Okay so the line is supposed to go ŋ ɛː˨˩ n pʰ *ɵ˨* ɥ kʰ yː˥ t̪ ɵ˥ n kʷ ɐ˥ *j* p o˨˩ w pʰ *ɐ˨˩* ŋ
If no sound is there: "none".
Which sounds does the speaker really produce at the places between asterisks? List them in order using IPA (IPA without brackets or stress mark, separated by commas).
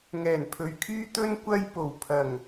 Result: ɵ˨, j, ɐ˨˩